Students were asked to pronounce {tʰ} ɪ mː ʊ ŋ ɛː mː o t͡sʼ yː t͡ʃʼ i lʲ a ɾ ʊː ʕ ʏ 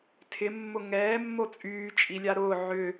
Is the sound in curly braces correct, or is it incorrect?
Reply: correct